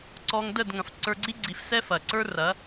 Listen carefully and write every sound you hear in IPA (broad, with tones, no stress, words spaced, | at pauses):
ǀɔ˧ŋdə˦˨d ŋɐ̃˨f ǀə˞˧ɡ͡ǀi˦ɡ͡ǀi˨˦fsɛ˦ fɐ˨ǀə˞˦rɐ˨˦